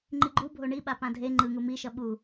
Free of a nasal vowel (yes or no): no